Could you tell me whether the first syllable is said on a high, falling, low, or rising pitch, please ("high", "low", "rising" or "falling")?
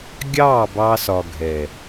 falling